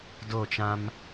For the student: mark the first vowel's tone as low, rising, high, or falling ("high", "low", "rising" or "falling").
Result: falling